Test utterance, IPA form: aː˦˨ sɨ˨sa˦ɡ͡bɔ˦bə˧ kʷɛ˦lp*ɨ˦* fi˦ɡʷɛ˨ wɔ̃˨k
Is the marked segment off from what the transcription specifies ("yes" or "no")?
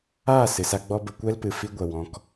yes